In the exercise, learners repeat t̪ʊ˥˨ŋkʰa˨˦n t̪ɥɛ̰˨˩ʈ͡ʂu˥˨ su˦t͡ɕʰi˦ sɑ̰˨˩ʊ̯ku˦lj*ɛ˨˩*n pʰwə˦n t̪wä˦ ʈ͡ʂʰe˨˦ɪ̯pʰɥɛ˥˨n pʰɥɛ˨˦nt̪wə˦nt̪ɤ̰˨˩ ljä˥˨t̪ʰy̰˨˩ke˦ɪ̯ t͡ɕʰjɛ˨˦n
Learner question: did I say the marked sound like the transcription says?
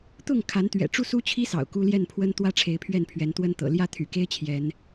no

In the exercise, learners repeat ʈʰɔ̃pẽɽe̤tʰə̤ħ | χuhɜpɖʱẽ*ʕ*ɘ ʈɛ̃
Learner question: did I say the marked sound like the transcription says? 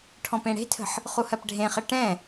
no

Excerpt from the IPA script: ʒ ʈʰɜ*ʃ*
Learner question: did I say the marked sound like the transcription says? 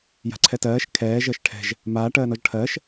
yes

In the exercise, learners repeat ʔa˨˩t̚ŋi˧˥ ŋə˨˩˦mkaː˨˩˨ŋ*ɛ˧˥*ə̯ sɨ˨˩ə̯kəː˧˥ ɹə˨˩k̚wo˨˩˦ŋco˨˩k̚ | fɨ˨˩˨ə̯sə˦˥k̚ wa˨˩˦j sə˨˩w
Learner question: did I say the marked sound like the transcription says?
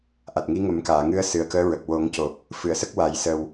no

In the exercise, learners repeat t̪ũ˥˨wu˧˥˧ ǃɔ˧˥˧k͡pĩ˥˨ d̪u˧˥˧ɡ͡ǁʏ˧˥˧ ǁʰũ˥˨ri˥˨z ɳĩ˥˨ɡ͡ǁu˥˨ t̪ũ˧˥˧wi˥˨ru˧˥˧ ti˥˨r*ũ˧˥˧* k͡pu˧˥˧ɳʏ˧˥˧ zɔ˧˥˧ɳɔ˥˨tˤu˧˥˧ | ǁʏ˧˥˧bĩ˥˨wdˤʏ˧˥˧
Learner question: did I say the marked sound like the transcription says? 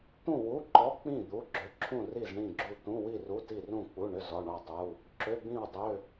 no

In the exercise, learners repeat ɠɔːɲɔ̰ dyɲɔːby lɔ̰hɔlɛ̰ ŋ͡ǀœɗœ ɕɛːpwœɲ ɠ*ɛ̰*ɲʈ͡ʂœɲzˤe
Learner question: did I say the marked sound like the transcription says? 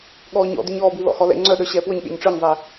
no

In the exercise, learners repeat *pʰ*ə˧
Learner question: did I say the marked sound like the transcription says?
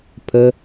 yes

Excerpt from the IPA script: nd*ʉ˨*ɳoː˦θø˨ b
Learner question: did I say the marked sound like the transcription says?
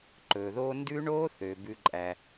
no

